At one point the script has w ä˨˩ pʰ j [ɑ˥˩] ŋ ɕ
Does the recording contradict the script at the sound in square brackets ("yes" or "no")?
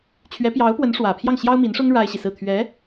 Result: no